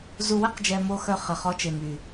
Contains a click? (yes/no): no